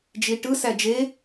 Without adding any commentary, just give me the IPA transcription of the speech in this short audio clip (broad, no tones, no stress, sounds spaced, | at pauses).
d͡ʒ i ʈ ɯ s æ d͡ʒ e